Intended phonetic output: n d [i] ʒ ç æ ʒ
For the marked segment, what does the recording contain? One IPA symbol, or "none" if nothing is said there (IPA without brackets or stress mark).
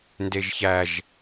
e